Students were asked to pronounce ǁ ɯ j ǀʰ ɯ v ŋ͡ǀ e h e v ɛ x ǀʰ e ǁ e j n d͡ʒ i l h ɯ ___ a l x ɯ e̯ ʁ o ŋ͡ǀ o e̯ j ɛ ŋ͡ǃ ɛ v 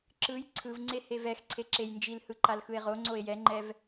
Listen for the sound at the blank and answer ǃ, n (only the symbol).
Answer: ǃ